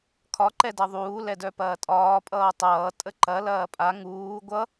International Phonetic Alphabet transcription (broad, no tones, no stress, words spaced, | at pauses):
kʰɒ ǃɛdʌðˤuː lɛdœpɐːtʼɒː pʼʌːtˤʌː tʼəǃɐ lɐːpʼa ŋuː ɡʷʌ